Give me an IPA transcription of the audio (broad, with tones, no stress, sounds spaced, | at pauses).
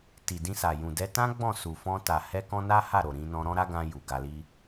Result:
t i˨ d ĩ˧ s a˨ j ũ˨ d ɛ˧ t ã˦ ɡ͡b ɔ̃˦˨ s u˨ f ɔ̃˧ t a˨ h ɛ˧ k ɔ̃˧ n a˦ h a˦˨ ɾ o˨ ɾ ĩ˧ n ɔ̃˧ ɾ ɔ̃˦ ɾ a˦ ɡ ã˧ j u˨ ɡ a˧ l i˦